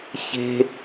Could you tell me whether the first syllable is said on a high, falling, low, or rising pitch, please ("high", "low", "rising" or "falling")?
high